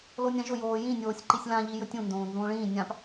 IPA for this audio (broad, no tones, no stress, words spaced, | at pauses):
lonʲãʒʊ joːjĩ nʲoːsʲǃisʲlã ʎijɵtʲũ ndõːnzũːɭĩː nʲãp